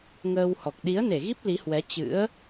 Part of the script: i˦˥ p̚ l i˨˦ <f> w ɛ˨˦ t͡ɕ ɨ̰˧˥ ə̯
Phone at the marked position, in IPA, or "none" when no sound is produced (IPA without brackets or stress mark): h